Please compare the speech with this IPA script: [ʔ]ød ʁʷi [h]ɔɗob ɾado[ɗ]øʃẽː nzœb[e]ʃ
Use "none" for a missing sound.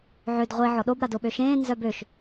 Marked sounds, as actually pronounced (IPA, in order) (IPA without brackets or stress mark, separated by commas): ʕ, ʕ, ɓ, ø